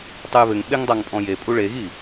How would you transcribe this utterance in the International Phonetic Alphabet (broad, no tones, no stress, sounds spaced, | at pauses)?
tˤ ɨ j β ɘ ŋ ɓ e ŋ dˤ a ŋ pʼ ɔ̃ j e pʼ u ɭ e ɣ i